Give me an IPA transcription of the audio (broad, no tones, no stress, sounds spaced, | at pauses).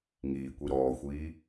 ŋ iː kʷ i ɾ ɔː xʷ iː